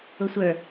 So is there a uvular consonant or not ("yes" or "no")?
no